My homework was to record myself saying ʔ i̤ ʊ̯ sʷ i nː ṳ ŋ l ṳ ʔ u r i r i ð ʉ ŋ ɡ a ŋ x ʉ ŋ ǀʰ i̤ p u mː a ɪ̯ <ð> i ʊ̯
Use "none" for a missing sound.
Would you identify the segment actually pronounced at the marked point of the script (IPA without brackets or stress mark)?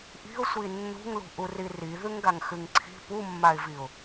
v